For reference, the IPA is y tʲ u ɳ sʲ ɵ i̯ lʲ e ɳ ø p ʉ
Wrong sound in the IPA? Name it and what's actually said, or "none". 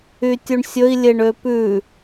none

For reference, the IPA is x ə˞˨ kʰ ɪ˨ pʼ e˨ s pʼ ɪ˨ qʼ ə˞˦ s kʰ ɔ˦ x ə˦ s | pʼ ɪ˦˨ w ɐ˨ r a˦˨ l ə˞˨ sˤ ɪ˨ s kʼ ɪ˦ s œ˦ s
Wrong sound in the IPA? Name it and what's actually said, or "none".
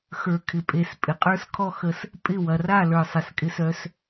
none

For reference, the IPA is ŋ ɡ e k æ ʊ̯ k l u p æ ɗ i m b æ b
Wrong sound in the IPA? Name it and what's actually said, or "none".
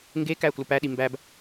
none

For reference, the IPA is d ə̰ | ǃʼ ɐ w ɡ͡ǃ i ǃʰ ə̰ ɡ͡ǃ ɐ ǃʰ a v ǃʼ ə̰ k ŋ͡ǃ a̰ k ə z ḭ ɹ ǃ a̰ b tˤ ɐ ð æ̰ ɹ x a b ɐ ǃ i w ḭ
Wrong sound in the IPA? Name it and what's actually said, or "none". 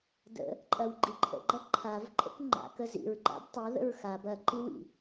æ̰ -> ə̰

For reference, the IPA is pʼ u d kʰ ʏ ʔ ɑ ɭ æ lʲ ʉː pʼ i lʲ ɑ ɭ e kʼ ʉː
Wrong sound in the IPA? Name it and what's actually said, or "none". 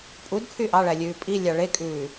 ʏ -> y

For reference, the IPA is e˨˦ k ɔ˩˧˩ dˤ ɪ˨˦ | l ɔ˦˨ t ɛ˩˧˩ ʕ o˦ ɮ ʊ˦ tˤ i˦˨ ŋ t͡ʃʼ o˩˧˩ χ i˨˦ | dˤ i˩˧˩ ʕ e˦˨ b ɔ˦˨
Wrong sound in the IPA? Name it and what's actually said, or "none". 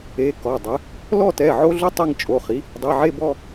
none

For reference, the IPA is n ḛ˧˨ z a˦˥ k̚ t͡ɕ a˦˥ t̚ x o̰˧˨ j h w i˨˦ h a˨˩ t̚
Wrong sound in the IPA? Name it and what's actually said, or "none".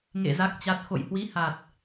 n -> ŋ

